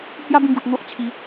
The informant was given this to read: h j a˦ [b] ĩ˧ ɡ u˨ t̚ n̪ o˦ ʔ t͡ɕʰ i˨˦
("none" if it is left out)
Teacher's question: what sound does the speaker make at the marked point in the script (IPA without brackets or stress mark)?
b